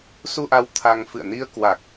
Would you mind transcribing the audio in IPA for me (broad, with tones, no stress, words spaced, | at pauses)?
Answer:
su˧ʔa˨˦w t̪ʰa˧ŋ fɨ̰˧˨ə̯ni˧ə̯ kwa˨˩k̚